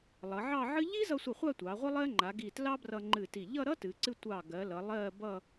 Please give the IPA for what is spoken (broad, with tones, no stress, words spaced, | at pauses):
lˠʌ˩˧ʕɑ˥˧ʕɨ˥ ʎi˥zʌ˧sʷʌ˧˩ χʷa˥˧tʷɑ˩˧ ʁʷə˥lˠɜ˥ ŋ͡ǃa˩˧ɡi˧˩ tlɑ˥brʌ˧ŋ͡ǃɨ˧˩ti˧˩ ʎʌ˥˧ɾʌ˥tɨ˩˧ǀɨ˧ tʷɑ˧˩ɡɜ˩˧lʌ˩˧ lˠɜ˥˧bʌ˥˧